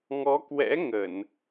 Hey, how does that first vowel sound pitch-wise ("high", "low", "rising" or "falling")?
rising